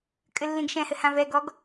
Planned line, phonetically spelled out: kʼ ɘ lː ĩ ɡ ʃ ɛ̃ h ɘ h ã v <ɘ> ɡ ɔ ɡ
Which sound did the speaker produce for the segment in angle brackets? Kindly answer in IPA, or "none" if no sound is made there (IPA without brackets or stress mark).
ɛ